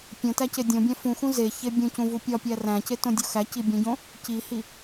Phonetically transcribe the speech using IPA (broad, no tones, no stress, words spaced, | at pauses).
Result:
pʲõtæce dʲõbʲæ̃ fũxũ zeçe bʲũcũvu pʲɒpʲæ ræ̃cetõdʲo xæci bʲũɟõ | cihi